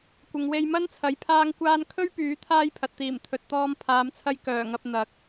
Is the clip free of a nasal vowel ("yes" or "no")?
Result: yes